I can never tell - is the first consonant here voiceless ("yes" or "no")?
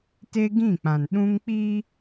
yes